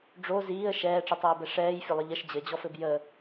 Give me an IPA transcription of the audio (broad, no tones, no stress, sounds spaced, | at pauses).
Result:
ɖ͡ʐ o z iː ə̯ ʃ ɛː ʈ͡ʂ i tˤ iː b ɛ ʂ ɛː j fʲ ə lˠ ə ʎ ə ʃ d͡ʑ ɘ d͡ʑ ɔ f ɘ b j ə